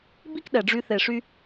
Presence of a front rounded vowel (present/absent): present